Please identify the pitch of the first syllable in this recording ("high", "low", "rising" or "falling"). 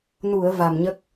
low